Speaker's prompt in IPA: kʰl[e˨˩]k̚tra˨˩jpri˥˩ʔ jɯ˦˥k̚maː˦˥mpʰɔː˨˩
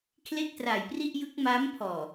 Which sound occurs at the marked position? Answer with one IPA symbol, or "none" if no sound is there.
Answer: e˥˩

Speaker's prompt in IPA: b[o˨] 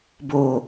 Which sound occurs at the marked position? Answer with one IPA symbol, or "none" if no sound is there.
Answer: o˨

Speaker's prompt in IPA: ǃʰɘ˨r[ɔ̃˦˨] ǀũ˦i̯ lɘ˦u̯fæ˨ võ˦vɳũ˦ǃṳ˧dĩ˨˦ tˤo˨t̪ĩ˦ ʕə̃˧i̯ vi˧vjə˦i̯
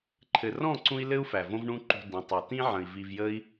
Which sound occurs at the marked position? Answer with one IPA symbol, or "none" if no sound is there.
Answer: ɔ̃˦˨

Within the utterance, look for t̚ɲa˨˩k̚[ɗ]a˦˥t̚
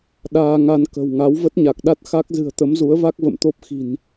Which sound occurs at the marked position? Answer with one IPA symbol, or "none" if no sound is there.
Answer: ɗ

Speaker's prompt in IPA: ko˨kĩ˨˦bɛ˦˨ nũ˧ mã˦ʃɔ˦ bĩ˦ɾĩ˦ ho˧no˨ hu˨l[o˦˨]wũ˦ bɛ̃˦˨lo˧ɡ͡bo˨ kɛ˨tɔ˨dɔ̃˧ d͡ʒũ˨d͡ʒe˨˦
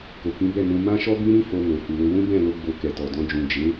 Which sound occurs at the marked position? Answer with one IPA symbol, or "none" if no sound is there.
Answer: o˧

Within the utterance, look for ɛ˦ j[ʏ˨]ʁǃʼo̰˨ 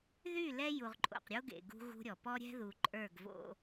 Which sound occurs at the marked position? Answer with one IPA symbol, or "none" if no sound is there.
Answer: u˨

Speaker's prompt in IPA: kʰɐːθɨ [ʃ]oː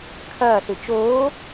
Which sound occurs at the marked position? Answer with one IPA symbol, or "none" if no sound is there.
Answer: t͡ʃ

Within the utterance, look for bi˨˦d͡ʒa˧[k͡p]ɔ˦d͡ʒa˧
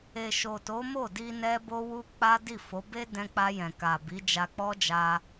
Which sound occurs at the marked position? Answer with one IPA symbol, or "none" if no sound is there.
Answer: k͡p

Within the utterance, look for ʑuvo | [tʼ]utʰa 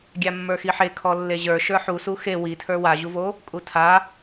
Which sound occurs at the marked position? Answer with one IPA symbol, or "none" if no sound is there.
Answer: kʼ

